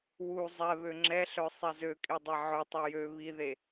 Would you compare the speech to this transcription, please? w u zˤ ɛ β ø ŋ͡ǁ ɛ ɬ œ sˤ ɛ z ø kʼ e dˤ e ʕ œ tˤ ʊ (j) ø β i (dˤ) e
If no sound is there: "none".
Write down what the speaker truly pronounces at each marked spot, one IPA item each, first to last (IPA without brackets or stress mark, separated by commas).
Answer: j, ð